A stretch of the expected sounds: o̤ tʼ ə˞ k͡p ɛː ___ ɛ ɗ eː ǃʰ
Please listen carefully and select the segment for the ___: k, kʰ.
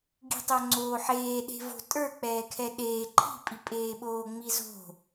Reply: kʰ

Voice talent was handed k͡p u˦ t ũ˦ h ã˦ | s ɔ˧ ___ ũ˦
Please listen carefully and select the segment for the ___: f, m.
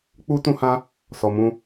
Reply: m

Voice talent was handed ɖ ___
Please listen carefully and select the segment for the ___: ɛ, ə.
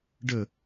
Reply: ə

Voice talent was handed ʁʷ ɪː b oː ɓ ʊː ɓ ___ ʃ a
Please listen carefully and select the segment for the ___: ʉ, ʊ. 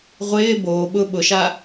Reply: ʊ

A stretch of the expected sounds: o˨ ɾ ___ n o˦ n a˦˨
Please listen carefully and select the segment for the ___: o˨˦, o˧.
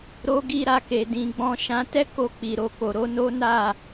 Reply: o˨˦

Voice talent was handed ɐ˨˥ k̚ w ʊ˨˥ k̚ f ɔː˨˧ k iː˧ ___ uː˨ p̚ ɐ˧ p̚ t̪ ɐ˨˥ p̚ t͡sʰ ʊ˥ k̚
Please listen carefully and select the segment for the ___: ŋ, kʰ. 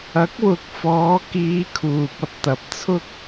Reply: kʰ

